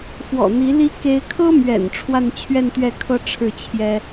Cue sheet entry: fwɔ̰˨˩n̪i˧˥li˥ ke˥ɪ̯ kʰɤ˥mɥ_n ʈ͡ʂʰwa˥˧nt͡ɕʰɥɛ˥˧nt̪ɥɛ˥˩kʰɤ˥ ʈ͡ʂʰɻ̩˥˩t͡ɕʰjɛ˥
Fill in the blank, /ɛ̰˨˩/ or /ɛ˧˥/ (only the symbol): ɛ̰˨˩